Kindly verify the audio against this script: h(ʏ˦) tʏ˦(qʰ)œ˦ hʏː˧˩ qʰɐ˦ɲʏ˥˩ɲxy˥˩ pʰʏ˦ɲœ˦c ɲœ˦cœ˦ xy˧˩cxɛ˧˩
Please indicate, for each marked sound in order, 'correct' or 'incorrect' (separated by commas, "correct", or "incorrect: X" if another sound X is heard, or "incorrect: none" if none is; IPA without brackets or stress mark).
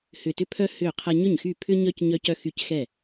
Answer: incorrect: ʏ˧˩, incorrect: pʰ